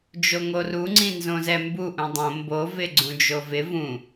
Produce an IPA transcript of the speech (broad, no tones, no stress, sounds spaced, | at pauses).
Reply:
d͡ʒ o ŋ o r u ŋ͡ǀ ĩ n z õ z ɛ m b u ʔ ũ dˤ õ m b o v ɪ ɡ͡ǀ ũ d͡ʒ o v ɪ v ũ